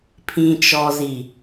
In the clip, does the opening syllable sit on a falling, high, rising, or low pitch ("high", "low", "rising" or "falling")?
low